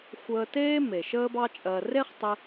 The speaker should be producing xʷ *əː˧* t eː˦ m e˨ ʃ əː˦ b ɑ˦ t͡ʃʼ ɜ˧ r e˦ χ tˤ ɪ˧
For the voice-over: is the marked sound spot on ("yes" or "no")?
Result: yes